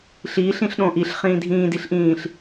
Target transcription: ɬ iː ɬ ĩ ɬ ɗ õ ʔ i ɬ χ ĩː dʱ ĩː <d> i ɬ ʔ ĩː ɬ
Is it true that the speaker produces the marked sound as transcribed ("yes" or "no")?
yes